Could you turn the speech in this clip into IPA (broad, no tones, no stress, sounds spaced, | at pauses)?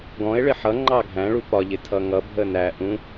ɡ ɔ̃ e̯ ɭ ɪ ħ ʌ ŋ͡ǃ ɑ ɡʱ æ̃ ɭ u p ɒ ʎ ɪ tʰ ʌ ŋ ʌ bʱ ə n æ ʔ ũ